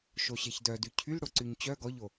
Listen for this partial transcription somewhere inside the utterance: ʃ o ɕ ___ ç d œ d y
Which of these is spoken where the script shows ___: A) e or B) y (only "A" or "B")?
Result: A